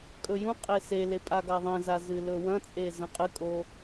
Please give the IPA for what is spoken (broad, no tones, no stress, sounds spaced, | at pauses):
kʼ ɵ j ũ qʼ e s e l e pʼ a ɡ a ðˤ ẽ z a z ɨ l ɵ w ɐ̃ t͡sʼ e z ɐ̃ qʼ ɨ kʼ o